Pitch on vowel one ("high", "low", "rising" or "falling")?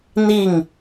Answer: falling